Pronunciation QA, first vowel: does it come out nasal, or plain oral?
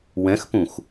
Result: nasal